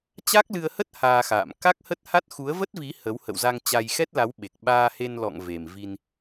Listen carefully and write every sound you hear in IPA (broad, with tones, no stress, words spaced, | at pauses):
t͡ɕa˦˥k̚lɨ˧ə̯hə˦˥t̚ haː˧xa̰ː˧˨m ka˦˥k̚hə˦˥t̚ha˦˥t̚ xu˨˦ə̯və˦˥t̚vi˨˦ hə˨˦w hə̰˧˨wza˧ŋ t͡ɕa˧jxɛ˦˥t̚la˨˦w ɓe˨˩k̚ɓaː˧he˧nlɔ̰˧˨ŋ ve˨˩mvi˧n